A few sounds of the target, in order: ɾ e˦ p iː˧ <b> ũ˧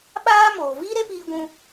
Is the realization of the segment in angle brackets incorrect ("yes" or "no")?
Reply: yes